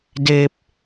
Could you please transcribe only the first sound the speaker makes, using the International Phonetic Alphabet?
d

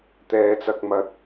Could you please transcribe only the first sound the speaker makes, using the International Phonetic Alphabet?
t̪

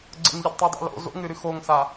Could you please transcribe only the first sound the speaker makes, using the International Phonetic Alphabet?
ɡ͡ǀ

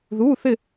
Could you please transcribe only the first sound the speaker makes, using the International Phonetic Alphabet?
ð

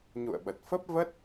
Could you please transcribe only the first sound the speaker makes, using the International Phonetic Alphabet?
ɲ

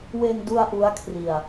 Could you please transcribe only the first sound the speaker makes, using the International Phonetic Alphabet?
w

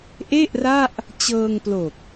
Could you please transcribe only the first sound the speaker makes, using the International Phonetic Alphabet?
ʔ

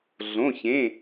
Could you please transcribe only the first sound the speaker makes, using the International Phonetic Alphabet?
ɮ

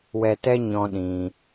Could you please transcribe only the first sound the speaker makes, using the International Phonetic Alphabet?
w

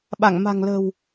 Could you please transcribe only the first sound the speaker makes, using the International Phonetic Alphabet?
ɓ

